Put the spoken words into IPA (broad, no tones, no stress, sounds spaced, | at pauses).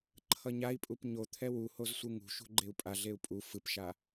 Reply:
ǃʰ ʌ ɲ a i̯ pʼ u p ɲ o t̪ʰ ɛ w u h o z sʷ ɯ ŋ ṳ ʃ ṳ ɡ͡ǃ e u̯ pʼ a ɮ e u̯ pʼ u f ɯ p ʃ a